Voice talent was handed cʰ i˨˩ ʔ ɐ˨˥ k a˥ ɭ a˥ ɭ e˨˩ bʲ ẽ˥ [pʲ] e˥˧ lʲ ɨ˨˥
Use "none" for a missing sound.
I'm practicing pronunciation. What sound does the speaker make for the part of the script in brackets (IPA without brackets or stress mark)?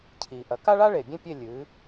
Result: pʲ